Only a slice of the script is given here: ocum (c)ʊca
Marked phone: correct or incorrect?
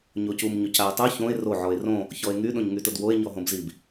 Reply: incorrect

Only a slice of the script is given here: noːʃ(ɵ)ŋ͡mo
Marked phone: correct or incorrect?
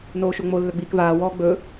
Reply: incorrect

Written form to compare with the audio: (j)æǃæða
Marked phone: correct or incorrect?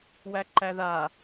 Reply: incorrect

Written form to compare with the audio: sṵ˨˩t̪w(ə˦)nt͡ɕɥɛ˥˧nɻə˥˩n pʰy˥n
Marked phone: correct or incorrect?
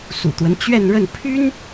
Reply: correct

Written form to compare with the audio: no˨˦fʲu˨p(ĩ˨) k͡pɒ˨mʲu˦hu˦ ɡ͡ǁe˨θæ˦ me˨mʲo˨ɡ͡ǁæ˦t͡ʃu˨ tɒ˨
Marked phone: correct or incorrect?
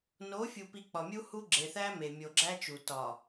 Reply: incorrect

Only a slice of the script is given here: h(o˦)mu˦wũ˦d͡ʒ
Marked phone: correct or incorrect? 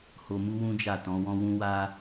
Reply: incorrect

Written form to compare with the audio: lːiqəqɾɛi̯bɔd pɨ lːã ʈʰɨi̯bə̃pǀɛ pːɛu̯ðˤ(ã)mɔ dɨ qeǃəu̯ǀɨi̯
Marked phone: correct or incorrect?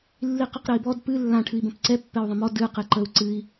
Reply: incorrect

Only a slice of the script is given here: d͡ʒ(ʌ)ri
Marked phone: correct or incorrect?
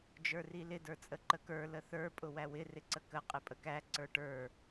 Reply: incorrect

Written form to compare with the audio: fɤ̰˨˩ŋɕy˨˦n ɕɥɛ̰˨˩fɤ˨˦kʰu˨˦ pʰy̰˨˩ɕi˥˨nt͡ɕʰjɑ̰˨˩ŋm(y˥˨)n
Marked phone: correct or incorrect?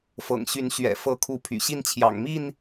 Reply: incorrect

